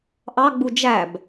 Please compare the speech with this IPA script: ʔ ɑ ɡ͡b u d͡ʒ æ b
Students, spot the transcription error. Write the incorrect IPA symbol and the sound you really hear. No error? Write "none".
none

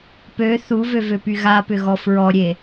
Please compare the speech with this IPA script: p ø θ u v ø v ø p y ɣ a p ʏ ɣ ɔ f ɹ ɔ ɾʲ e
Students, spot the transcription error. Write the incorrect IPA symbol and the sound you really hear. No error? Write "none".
none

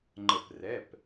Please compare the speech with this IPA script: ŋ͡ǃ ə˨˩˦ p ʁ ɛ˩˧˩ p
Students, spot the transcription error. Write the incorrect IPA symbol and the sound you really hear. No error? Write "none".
ʁ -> r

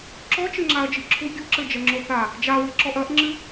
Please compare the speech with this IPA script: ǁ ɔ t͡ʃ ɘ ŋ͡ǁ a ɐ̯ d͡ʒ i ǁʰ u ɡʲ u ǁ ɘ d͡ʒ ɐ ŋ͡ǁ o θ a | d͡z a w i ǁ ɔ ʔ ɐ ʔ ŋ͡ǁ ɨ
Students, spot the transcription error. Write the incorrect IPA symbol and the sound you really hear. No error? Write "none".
d͡z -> d͡ʒ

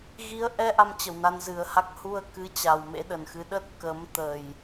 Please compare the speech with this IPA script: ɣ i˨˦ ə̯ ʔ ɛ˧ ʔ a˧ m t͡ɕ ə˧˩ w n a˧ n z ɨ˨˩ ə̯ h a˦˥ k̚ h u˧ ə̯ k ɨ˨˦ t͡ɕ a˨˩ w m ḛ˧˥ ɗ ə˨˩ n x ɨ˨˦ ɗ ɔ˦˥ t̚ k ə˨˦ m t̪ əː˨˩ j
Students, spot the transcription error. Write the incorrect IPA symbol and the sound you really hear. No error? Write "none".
ɔ˦˥ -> ə˦˥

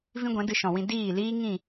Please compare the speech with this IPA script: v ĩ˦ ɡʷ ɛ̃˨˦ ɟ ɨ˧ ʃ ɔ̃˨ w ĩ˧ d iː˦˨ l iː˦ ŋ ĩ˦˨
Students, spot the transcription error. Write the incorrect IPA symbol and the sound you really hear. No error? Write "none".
ɟ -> d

